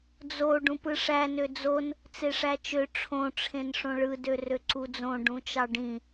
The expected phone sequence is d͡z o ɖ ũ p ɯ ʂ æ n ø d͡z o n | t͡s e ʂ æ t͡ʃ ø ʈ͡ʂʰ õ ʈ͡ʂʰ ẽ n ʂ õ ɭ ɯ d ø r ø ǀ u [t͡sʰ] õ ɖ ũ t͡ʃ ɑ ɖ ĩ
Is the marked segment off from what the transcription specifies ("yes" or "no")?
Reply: yes